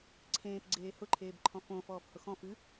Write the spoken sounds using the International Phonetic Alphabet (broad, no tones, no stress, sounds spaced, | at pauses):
ǀʰ ẽː p ɡ͡ǀ eː h ʊ ǃʰ eː b ǃʰ ɔ̃ f õː f ɔː f h ʊ x ɔ̃ f ɨ